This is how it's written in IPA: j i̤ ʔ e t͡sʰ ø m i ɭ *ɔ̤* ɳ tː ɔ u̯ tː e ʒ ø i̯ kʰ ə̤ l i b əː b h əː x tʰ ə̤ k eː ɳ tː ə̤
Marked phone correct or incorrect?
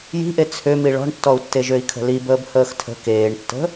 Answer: correct